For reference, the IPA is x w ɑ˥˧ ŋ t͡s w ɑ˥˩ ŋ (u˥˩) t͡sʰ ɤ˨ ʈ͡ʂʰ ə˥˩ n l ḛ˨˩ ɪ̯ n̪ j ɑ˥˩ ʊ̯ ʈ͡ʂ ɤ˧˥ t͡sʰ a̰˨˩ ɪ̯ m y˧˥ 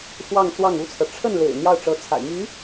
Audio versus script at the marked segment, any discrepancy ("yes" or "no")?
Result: yes